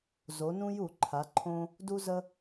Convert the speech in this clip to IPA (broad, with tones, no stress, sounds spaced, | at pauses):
z o˩˧ n ũ˧ j u˧˩˧ ǃʰ a˩˧ ǃʰ õ˧ | d u˧ z ə˧